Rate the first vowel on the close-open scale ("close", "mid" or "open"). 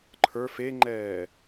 mid